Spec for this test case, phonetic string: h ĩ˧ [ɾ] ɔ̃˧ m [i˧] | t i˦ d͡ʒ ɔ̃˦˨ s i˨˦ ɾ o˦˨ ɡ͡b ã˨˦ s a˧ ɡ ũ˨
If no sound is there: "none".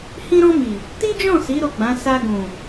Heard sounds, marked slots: ɾ, i˨

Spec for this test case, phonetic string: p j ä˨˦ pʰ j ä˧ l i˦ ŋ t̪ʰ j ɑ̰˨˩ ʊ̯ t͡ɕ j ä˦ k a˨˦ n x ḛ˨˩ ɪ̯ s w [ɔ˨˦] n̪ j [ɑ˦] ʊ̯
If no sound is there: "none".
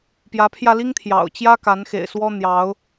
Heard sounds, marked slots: ɔ˦, ɑ˨˦

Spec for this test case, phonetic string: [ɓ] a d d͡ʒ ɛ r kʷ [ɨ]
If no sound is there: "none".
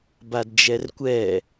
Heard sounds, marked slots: b, ɛ

